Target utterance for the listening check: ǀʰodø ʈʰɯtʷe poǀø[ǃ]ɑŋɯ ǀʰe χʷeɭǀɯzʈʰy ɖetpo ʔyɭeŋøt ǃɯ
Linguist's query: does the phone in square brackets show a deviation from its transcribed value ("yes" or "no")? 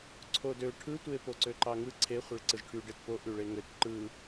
no